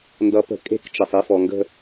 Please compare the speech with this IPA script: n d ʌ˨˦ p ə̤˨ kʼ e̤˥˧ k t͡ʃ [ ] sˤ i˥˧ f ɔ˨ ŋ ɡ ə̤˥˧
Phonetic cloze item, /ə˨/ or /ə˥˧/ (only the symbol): ə˨